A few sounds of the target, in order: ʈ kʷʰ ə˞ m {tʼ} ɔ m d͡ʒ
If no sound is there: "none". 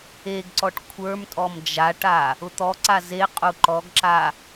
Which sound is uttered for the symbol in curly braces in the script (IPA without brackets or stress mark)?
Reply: tʼ